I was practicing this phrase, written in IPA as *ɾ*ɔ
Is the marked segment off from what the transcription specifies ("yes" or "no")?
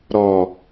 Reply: no